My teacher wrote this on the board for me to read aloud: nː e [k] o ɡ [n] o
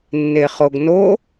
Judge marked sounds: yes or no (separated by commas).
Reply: no, yes